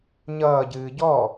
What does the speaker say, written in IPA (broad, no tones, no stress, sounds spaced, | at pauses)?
ɲ ʌː ɟ ɨː ɟ ɔ